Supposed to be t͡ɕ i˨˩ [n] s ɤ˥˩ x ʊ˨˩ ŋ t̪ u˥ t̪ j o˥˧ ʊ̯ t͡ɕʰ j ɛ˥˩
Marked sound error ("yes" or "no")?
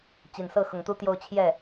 no